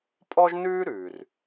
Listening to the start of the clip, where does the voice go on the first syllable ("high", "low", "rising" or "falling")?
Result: high